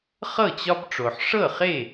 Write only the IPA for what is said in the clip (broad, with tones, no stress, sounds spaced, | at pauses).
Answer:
χ ɤ˥˨ t͡ɕ ɒ˥ b ʈ͡ʂ o˨ ħ ʂ ɤ˥˨ χ e˥˨